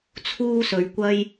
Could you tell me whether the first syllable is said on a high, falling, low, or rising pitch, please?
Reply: high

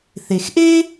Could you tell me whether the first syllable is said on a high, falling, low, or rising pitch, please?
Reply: low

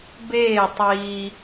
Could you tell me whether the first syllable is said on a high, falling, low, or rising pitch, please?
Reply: falling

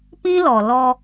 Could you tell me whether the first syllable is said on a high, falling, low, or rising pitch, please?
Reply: high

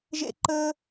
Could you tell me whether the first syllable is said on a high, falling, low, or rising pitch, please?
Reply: high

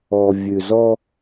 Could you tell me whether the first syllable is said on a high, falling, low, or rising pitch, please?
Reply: low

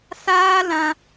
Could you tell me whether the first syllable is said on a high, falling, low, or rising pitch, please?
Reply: high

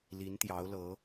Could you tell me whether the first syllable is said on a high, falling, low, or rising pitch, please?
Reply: rising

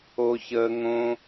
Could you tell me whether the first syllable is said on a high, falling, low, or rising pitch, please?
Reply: high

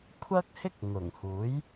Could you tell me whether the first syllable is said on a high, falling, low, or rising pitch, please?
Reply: high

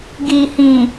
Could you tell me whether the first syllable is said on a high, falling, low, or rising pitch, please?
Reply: low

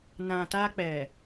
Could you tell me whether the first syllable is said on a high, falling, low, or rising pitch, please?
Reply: low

